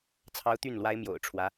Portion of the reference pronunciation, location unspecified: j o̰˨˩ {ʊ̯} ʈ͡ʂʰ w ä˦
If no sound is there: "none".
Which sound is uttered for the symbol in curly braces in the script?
ʊ̯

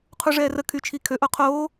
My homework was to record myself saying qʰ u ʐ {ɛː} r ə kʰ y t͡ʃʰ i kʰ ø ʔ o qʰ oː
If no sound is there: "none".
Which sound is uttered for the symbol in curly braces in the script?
ɛː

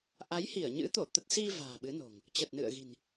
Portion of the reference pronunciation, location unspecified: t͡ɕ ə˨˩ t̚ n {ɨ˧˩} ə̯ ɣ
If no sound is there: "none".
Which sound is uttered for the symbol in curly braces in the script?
ɨ̰˧˨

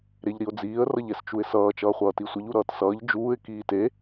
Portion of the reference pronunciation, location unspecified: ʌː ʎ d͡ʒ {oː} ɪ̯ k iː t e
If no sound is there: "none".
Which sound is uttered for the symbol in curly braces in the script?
uː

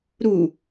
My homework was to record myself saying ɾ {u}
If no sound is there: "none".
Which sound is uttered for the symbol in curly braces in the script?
u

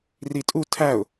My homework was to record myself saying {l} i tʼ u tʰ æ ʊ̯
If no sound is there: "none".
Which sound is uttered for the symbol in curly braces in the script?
r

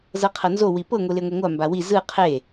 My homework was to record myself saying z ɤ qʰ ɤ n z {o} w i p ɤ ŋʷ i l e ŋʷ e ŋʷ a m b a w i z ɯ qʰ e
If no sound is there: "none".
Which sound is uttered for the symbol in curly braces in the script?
o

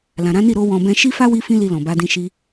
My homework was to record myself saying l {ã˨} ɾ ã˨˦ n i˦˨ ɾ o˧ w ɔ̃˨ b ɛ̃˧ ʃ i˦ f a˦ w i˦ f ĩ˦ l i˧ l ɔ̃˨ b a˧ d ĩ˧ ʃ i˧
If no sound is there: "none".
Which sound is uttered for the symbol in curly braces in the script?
ã˨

